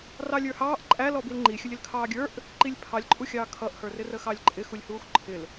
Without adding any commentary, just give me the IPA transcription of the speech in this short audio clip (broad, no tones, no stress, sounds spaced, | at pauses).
r ɑ lʲ ə˞ h ɑː ʔ ǃʼ æ l ɔ b i l ŋ͡ǃ i xʲ ə lʲ ɪ l kʰ ɑː ɡʲ ə˞ ʔ | ǃ i lʲ pʰ ɑ lʲ ǃʼ u xʲ ɑː kʰ ʌ ʔ h ə˞ r ɪ r ə x ɑ lʲ ǃʼ ɪ x u lʲ h uː x ǃʰ ɪ l